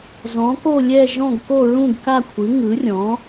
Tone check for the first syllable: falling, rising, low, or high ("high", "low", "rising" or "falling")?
rising